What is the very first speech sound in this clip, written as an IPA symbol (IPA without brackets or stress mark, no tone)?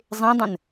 zˤ